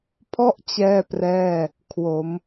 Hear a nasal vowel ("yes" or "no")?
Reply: no